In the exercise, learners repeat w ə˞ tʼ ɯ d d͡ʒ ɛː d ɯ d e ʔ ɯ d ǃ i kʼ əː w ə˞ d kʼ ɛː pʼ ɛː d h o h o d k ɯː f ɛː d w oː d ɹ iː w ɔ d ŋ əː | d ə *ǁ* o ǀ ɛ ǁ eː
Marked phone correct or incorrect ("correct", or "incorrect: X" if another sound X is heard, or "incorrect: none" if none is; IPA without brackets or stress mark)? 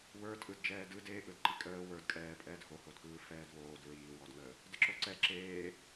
correct